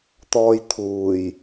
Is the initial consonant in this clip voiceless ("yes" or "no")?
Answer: yes